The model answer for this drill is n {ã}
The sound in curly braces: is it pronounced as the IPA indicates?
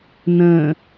no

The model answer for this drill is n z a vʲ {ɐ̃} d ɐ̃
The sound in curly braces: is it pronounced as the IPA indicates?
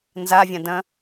no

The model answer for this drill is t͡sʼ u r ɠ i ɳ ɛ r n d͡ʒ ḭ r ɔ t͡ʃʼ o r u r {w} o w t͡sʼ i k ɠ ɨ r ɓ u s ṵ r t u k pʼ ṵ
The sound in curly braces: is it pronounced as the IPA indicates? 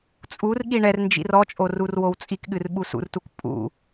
yes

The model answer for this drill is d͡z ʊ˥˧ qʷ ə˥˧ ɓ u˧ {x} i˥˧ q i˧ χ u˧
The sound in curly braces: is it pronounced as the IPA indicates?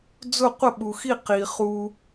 yes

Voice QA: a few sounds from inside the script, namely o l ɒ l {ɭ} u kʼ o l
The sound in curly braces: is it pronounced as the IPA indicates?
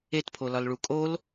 yes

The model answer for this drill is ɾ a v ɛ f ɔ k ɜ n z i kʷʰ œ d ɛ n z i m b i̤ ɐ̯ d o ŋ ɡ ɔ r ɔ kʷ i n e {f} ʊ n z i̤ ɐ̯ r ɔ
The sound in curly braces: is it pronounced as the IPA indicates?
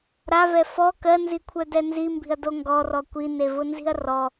no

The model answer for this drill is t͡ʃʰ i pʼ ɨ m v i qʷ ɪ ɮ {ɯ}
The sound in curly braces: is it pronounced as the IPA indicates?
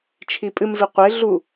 no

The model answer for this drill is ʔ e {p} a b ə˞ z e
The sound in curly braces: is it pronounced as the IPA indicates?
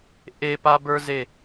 yes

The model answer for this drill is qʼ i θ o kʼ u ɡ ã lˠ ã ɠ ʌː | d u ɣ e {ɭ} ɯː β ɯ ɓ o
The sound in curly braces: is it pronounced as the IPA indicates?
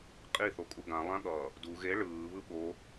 yes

